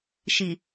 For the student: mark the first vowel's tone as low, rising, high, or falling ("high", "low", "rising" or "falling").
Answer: low